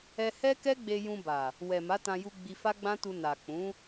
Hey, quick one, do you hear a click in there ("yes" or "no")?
no